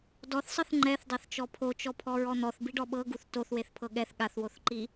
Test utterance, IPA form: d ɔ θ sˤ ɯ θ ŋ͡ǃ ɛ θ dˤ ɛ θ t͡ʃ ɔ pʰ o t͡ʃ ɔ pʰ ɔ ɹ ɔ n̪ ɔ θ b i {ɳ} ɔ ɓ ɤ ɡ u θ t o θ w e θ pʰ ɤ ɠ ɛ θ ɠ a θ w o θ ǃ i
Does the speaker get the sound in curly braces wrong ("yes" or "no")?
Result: yes